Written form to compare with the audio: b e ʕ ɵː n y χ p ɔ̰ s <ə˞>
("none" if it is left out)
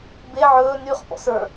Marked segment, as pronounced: ə˞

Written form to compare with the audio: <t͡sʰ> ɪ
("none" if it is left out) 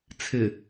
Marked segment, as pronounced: t͡sʰ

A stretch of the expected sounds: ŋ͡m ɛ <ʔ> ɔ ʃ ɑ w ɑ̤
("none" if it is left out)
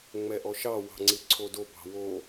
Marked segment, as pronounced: ʔ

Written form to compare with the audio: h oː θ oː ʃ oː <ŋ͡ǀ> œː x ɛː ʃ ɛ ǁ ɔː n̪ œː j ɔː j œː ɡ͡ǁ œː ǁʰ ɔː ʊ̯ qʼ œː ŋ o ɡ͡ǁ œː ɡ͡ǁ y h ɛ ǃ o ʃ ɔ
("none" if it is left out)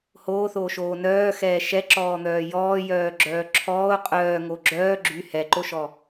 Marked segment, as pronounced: n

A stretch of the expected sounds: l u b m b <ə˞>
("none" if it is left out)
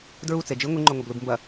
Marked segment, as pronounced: ɐ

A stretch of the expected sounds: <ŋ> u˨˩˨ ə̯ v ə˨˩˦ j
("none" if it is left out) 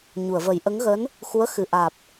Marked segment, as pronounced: ɲ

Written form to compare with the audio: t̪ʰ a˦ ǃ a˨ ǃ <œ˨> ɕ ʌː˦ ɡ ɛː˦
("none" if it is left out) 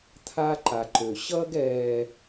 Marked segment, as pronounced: ø˨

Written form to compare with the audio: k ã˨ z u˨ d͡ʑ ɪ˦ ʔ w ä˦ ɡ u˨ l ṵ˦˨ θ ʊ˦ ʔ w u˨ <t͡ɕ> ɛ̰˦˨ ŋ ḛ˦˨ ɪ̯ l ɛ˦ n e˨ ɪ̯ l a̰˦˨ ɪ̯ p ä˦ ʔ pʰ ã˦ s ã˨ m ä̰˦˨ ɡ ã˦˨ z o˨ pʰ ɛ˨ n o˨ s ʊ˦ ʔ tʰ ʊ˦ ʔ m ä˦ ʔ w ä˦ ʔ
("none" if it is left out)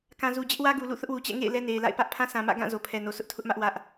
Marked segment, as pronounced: t͡ɕ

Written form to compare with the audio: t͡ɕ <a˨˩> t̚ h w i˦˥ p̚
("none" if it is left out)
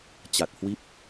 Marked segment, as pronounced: a˨˩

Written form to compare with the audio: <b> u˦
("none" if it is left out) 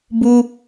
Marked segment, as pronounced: b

